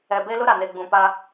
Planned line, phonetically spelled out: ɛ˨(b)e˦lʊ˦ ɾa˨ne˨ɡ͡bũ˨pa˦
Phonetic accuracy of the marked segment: correct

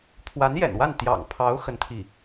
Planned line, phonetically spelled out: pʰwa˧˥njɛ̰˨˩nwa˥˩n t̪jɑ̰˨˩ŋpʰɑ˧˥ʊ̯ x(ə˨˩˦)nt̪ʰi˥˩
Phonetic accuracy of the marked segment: incorrect: ə˥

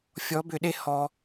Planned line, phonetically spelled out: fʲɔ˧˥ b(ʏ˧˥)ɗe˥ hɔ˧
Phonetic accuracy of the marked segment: incorrect: ʏ˧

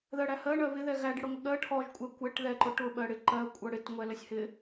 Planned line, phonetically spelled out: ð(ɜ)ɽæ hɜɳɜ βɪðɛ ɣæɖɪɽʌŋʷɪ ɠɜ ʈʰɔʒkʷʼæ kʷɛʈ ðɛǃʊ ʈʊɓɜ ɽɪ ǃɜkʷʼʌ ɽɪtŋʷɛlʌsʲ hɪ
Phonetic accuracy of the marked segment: correct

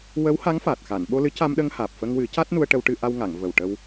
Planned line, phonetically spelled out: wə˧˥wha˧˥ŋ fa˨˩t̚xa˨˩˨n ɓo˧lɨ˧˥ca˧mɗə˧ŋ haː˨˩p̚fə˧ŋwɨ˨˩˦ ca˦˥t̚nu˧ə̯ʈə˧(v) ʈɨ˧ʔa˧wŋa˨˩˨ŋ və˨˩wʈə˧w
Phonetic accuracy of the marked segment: incorrect: w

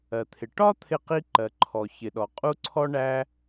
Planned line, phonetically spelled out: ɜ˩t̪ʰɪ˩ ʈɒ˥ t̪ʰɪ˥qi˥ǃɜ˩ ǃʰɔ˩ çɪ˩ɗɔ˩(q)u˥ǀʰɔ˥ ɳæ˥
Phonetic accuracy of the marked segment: incorrect: qʼ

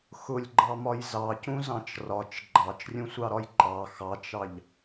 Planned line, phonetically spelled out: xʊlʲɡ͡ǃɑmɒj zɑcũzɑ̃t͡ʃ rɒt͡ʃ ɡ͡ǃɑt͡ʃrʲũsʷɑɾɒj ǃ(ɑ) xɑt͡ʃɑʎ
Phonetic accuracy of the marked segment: correct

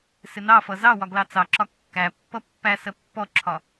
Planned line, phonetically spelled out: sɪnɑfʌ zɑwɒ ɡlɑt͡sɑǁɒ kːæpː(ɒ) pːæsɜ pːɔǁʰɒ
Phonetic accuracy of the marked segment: incorrect: ʌ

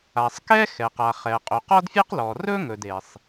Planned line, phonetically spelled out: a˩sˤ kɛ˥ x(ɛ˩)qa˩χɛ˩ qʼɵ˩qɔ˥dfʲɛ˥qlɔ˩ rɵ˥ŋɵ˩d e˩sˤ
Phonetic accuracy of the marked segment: correct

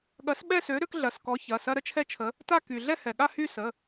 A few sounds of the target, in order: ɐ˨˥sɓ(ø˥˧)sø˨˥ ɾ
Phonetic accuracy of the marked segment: incorrect: ɛ˥˧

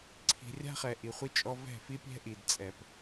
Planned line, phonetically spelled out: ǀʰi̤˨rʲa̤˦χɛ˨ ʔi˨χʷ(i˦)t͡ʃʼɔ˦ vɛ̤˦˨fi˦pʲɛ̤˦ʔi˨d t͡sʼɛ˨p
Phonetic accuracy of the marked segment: correct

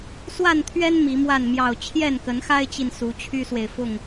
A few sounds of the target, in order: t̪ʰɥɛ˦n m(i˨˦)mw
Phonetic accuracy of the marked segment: correct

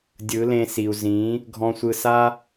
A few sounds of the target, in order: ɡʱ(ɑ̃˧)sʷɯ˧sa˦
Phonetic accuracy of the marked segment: incorrect: ɔ̃˧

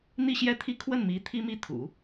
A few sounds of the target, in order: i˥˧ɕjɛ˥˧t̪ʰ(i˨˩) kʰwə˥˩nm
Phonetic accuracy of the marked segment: incorrect: i˥˧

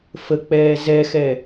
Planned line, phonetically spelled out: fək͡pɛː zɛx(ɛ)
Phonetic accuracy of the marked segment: correct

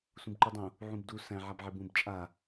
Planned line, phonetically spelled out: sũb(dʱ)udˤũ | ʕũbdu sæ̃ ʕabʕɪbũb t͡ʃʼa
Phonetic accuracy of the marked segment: incorrect: ǃ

